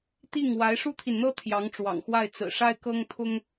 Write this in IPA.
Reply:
t̪ i˥˩ ŋ w a˧˥ ɪ̯ ʂ u˥ t̪ʰ i˨ n n̪ ɤ˥ t̪ʰ j ɑ˧˥ ŋ ʈ͡ʂ w ɑ̰˨˩ ŋ x w a˥˩ ɪ̯ t͡s ɹ̩˨˩ ʂ a˥ ɪ̯ k ɤ˥ ŋ t̪ʰ ʊ˥ ŋ

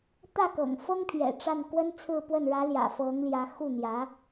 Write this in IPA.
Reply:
t̪ ä˥˩ k ɤ̰˨˩ ŋ f ɤ˥ ŋ pʰ j ɛ̰˨˩ ʈ͡ʂ a˥˩ n k w ə˥ n t͡sʰ ɹ̩˥˧ p w ə˥˩ n ɻ ä˧˥ l j ä̰˨˩ f ɤ˧˥ ŋ l j ä˧˥ x u˥˩ n̪ j ä˧˥

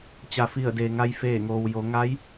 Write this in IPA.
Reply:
t͡ɕ a˩ f i˧˩ ə̯ d eː˩ ŋ a˧ j f eː˧˩ ŋ oː˩ w j o˩˧ ŋ a˧˥ j

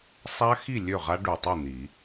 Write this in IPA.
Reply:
sˤ a˦˥ x i˥˩ lʲ ø˥˩ ʁ a˦˥ ɖ u˨˩ tˤ i˥˩ n̪ i˨˩˦

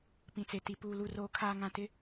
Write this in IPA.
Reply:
p ĩ˨ t͡s e˨ t i˨ p uː˨ l u˨ r oː˨ kʰ aː˨ ŋ ã˨ t ɪ˦

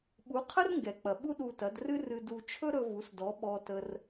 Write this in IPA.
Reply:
ɓ u˩˥ qʰ ə˥ r ŋ ɡ ɛ˩ k͡p ɐ˩ ɓ u˥ ɗ u˧ t ɐ˩˥ d r ɨ˥ r ɨ˧ d u˧ t͡ʃʰ ɵ˥ ɾ ɵ˧ v u˩˥ s d ɔ˩˥ ɓ ɔ˧ t ə˧ r

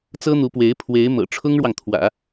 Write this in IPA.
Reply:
t͡s ɤ˥ n̪ u˧˥ p w e˧˥ ɪ̯ pʰ w e˧˥ ɪ̯ m ɤ̰˨˩ ʈ͡ʂʰ ʊ˥ ŋ ɻ w ɑ˨ ŋ t̪ʰ w ä̰˨˩˦

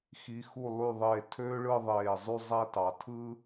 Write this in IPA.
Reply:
x i˩˧ x u˧˩ lˠ y˧˩ ðˤ eː˧˩ tʰ øː˥ ɭ ɯ˥˧ ðˤ eː˧˩ zˤ y˥˧ zˤ æ˥ t ɑ˩˧ tʰ ɯ˥

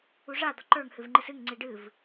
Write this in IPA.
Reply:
u ʐ a d̪ ɒ ǃ ə˞ ŋ h ɨ v ŋ͡ǃ ɨ s ɨ ŋ ŋ͡ǀ i ɖ ɨ v

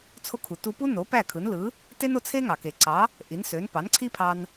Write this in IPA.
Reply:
t͡sʰ o˧ kʰ u˩ t u˧ p u˥ n o˩˥ p æ˥˩ kʰ ɯ˩˥ n l ɯ˩˥ | t e˥ n o˧ t͡sʰ e˥ ŋ ɑ˩ k e˩ ǀ ɑ˩˥ | ʔ i˩˥ n s ø˩˥ n p ɑ˩˥ n ǀʰ i˥ pʰ ɑ˧ n

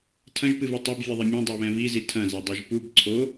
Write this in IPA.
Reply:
tʰ ɐ̃ ʒ p ɨ v ɨ tˤ ɐ b vʲ ɨ ðˤ ɘ mʲ ɐ̃ dˤ o β ɛ̃ v i z i tʰ ɐ̃ z ɛ dˤ i ʒ p u b ǀʰ o

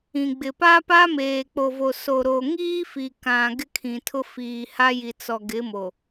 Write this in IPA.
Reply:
ĩ˨ ɡ͡b ɪ˨ p a˦ p a˦ m eː˨ k͡p o˨ v o˨ s o˨ ɾ o˨ ŋ iː˦ f i˨ k ã˨ ɡ ɪ˦ kʰ ĩ˨ tʰ ʊ˦ f iː˨ h a˦ j i˨ t͡s ɔ˨ ɡ ɪ˨˦ m o˨

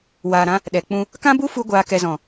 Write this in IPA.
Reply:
w aː˨ ɾ ã˧ | ɗ ɛ˨ k͡p ũ˧ | k ã˦ b u˦ f u˧ ɡʷ aː˨ k ɛ˨ z ɔ̃˨

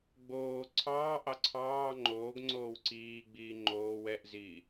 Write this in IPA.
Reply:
ɡ͡b oː ǀʰ ɑː ʔ ɑ ǀʰ ɑː ŋ͡ǃ oː ɡ ŋ͡ǀ oː w ǀ iː ɡ͡b iː ŋ͡ǃ oː w ɛ ʔ z iː

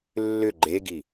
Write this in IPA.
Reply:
lː ʏ ɡ͡ǃ e ɡ i

